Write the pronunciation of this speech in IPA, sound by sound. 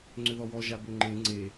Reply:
ŋ͡ǀ ʏ ð ɔ w ɔ ʒ a b ø ŋ͡ǃ ẽ ŋ͡ǀ e

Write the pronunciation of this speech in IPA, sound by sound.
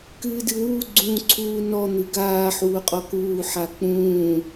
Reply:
k ɨː d ɨ w uː ɡ͡ǀ ũː ǀʰ uː n ɔ n̪ ɨ ɡ aː ħ uː qʼ ɔ k uː ħ a k͡p ũː

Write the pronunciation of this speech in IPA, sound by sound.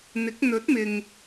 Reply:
n̪ ɪ˨˥ k̚ n̪ ɵ˨˥ t̚ m ɪ˨ ŋ

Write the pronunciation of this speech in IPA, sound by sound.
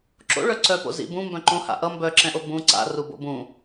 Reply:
ǁ o̰ ɭ œ ǀ œ p o̰ z ḭ b ũ m b œ̃ ǃ õ h a̰ ʔ ʌ m b œ ǁ ɛ̃ ʔ o b ũ ǀ a̰ r u b o̰ b ũ

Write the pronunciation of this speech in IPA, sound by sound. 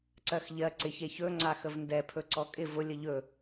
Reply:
ǀ ɜ x ʎ ɜ ǀ ɪ ç e ç ɵ ŋ͡ǀ a x ə v n d ɛ pʰ ɵ ǀ ɔ kʼ ɪ v ʊ lʲ ə ʎ ɵ

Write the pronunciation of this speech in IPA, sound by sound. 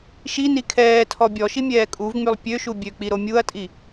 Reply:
ʃ i n i kʰ ɛː tʰ ɔ bʲ ɔ ʃ i mʲ ɛː kʼ u v ŋ͡m y lˠ pʲ ø ʃ u bʲ ø k͡p i ɾ o mʲ u ɐ̯ tʼ i

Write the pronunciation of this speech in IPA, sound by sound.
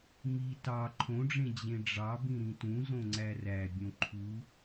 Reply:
m i t ɑ ǃʰ õ ɖ͡ʐ ẽ d͡ʑ ẽ ɖ͡ʐ ɑ b ĩ ɾ ĩ t ũ z õ ŋ͡ǀ æ r æ bʲ õ ǃʰ u

